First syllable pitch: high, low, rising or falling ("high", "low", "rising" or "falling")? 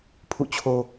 falling